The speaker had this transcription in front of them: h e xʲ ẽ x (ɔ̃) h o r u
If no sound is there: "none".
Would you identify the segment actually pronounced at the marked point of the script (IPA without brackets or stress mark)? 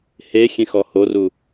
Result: ɔ